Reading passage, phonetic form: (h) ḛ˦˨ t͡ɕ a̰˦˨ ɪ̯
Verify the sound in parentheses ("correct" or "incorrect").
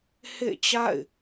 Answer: correct